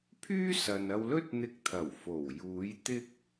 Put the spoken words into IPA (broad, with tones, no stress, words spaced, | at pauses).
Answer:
pʰyː˥sɐ˨nɐ˧wlɵ˥t̚ n̪ɪ˧k̚t̪ʰɐ˨˩w fo˨˩w juː˨˥j t̪ɪ˥k̚